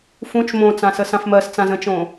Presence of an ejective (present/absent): absent